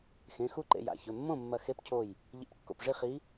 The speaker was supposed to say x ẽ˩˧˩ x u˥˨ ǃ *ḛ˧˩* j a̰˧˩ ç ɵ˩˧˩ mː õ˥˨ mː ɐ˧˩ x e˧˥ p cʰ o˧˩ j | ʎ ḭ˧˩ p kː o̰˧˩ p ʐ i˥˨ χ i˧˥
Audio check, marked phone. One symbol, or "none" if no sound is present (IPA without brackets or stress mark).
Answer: ḛ˧˩